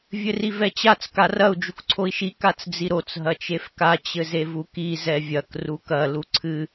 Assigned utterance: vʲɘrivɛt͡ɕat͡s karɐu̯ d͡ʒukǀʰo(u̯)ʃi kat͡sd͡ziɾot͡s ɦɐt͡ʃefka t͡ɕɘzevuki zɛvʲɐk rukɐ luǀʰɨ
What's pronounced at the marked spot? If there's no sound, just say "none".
i̯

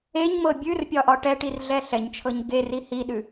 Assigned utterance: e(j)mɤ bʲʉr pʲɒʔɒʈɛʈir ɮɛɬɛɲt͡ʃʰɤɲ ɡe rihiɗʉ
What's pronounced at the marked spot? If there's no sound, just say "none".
ɲ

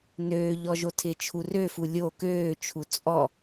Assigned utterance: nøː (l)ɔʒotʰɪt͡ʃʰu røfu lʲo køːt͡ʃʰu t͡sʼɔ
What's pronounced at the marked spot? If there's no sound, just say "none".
ʎ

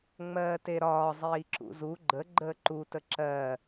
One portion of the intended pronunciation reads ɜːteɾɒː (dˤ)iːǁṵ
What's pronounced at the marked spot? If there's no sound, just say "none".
zˤ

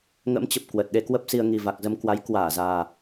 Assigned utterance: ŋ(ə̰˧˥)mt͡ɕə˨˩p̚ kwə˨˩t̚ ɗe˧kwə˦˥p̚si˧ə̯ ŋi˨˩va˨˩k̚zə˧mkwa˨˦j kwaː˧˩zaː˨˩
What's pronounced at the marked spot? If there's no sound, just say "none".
ə̰˧˥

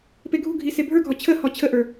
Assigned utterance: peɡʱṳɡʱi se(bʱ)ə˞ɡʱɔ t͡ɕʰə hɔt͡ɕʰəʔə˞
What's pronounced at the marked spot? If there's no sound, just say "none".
bʱ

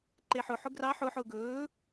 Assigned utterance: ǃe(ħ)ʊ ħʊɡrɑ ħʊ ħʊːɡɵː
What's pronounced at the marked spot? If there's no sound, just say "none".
ħ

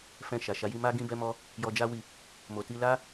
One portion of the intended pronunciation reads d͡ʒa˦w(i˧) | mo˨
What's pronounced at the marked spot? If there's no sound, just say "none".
i˦˨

